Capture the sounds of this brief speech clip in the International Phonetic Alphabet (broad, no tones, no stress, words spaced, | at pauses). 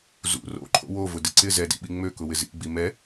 zṵ ro̰ǃʰo̰ wovʊdɪ ǀɪ zɛdḭɓi ŋ͡møkʊwɪ zḭɡ͡bi mɛ